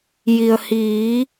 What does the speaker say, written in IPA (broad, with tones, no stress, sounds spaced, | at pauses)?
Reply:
j i˩ ə̯ h iː˩˧